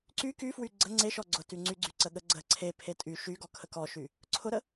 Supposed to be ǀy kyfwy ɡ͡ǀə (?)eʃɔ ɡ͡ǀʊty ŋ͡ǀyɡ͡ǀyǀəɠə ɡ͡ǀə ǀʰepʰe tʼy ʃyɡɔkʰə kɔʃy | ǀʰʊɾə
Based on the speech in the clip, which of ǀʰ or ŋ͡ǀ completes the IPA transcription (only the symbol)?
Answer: ŋ͡ǀ